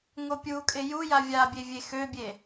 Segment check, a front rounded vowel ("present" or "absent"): present